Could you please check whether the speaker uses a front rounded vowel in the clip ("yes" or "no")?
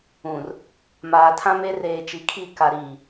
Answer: no